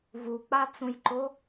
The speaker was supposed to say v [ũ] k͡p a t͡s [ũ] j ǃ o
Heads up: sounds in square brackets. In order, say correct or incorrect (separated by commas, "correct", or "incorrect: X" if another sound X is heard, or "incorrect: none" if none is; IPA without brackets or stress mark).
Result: incorrect: u, correct